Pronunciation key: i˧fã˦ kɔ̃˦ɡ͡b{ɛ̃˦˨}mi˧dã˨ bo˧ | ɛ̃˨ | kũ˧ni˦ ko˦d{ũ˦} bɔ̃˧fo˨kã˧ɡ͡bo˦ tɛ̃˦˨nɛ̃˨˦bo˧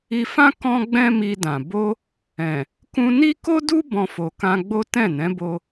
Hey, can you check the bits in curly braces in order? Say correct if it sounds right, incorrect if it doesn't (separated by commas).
incorrect, incorrect